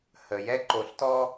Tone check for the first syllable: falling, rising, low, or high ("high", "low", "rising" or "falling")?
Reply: low